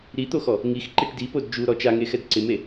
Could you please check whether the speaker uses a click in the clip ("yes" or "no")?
yes